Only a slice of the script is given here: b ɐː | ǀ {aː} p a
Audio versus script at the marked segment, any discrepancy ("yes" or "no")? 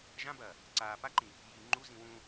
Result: no